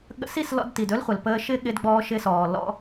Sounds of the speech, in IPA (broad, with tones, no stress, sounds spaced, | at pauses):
ɠ ə̰˧ s i˦˨ s l ɔ̰˧ d t i˨ d ɵ˦ l χʷ ə˨ l p əː˧ ʃ ɪ˦ ɠ ɪ˧ d ɡ͡b ɔː˧ ʃ ɪ˧ s ɔː˨ l ɔ̰˦